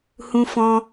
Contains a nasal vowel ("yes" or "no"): yes